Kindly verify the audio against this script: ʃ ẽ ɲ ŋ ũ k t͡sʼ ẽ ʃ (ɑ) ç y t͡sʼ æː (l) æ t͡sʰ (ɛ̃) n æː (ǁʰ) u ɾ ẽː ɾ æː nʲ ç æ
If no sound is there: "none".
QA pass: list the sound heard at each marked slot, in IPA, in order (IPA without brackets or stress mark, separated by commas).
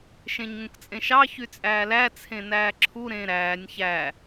ɑ, l, ẽ, ǁʰ